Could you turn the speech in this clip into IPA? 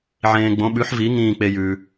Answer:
ʕẽː˧ ɡ͡bõ˩˥ɓʉ˩˥ħvi˩˥ ŋĩː˥˩k͡pe˧jʉː˩

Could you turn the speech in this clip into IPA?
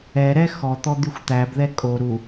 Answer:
ɛɾɛ xɔt̪ɔ d̪yxʷt̪æbðɛ kʼo ɾu

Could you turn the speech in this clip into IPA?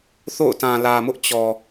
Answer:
θo̰˦˨ʊ̯tã˨ lä˨mʊ˦ʔ t͡ɕɔ˨

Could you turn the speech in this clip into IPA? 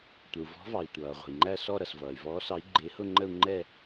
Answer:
tʷə˩u̯vɔ̤˨˥vɑ˩i̯ tʷʌː˩ʁʷə̤˩i̯ ŋ͡ǃæ˥˧sɔ˥˧ ɾʌ˩svʌː˩y̯ vɔː˨˥sɑ˨˥i̯ ɡ͡ǃɪː˨˥hʊ˥˧ŋ͡ǃə˥˧u̯ ŋ͡ǃɛ˥˧

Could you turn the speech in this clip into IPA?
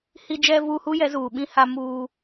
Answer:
hi˨d͡ʒɛ˨vuː˨ hu˦jɛ˨˦ zuː˨ɓĩ˦ha˦ muː˦

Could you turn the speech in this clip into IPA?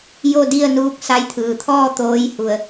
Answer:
jo˥˨di˥˨ə̯nuː˧˥k̚ sa˧jt̪ʰɯː˩t̪ʰɔː˥˨ t̪oː˧˥jhu˩ə̯

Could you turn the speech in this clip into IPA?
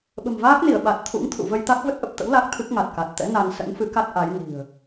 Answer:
ɓə̤˨˩mvaː˦˥k̚ni˧˩ə̯ ɓa˨˩t̚ t̪ʰṵ˧˥ŋt̪ʰṵ˧˨və˧jt̪a˦˥k̚ və˦˥t̚ʔə˨˩p̚t̪ə̰˧˥w la˦˥k̚t̪ʰɨ˦˥k̚ ŋa˨˩t̚ka˨˩t̚t̪ɛ̰˧˥ na˧n sə̰˧˥nfɨ˨˦ka˦˥t̚ ʔa˨˦jni̤˨˩ə̯

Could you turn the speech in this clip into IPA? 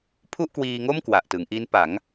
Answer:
pʰu˥˩ʔkwiː˧ŋo˥˩m kwa˨˩ʔtɯ˩˦ŋʔi˦˥n pa˩˦ŋ

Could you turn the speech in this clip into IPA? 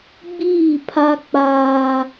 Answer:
ɡ͡biː˦˨pʰa˦k͡paː˦

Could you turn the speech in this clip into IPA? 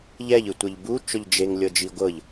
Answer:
ʎɛʎɯtʷɤʎ but͡ʃɔʎ d͡ʒeŋlʲɤd͡ʒi ɡʷɤʎ

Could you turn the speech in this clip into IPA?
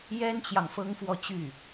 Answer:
jɛ˥nt͡ɕjɑ˨ŋ fɤ˥ŋfwɔ˥˧t͡ɕy˥˩

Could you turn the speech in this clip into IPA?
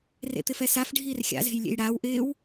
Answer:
rḛt̪ɪfɛsaf ɖʱiːrxʲa̰ ze̤jlʲḛjɽaːw ʔɪːw

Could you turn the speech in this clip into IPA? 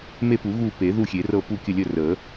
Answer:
me˦˨pu˨˩˦ ɣu˦˨ pe˨˩˦ðu˦˨xʲe˨˩˦rɤ˦˨ pu˦˨kʲə˦˨ lʲə˦˨rə˨˩˦

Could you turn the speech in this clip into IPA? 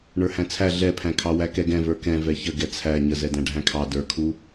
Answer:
ɳə˞hæ̃t͡sʰæ ɮɛpʰæ̃kʰɑ wækɛɡɛ̃və˞ kɛ̃ vɛçə ɡɛt͡sʰæ ɲəzɛdæ̃ ɖʱæ̃kʰɑ də˞kʰu

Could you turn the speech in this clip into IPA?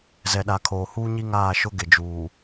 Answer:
zɛ˨ɗa˨kʰoː˨ huː˦ɲi˦ŋaː˦˨ ʃʊ˦ ɡɪ˨d͡ʒuː˨

